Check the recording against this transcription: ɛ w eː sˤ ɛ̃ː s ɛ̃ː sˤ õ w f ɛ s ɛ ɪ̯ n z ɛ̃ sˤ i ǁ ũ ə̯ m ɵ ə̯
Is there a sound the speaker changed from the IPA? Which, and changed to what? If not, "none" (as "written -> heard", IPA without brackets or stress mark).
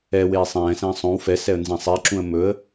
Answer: ɪ̯ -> ə̯